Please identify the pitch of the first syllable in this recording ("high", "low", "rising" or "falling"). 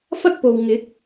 high